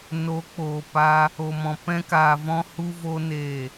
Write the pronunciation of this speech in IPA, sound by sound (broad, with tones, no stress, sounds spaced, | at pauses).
n o˨˦ k͡p oː˨ p a˧ | o˨ m ɔ̃˨ p ɛ̃˦ k aː˧ v ɔ̃˦ h u˦ v o˦ n e˦˨